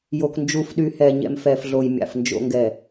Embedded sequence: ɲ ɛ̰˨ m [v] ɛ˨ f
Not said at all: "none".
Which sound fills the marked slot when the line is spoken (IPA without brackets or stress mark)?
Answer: f